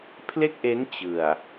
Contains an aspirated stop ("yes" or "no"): yes